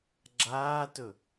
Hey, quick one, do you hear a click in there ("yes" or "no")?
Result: yes